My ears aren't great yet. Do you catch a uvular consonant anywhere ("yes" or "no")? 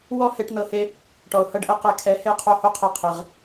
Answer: yes